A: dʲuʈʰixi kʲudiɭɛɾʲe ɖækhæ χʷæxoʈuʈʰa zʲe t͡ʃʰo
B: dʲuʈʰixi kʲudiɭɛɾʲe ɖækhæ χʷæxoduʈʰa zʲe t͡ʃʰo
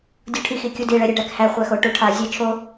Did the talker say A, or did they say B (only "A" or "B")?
A